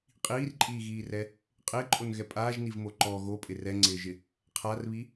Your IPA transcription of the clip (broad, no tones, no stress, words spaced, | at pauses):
qʼiːrǃʼiːɣiːrɛ | qʼɪːǃʼonɣɛ pʼaːʒnivmo ǃɔ ɣopʼɪ rɛŋ͡ǀɪːʒɪ | qʰarβi